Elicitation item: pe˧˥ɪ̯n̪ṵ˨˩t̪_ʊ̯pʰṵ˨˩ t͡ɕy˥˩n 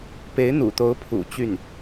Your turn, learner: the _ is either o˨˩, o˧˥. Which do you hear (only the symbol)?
o˧˥